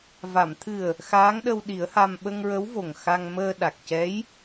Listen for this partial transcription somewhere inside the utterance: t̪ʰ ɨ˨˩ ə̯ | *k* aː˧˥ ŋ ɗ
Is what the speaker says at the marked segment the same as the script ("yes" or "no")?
no